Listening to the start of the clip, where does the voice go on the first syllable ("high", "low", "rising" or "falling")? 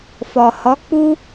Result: low